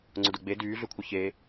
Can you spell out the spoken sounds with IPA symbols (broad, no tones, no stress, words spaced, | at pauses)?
ŋ͡ǀʊdʊɡ͡be dyːɮʏkʷʰɪ çe